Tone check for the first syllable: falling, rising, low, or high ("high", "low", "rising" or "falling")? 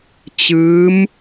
rising